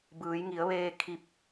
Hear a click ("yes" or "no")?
no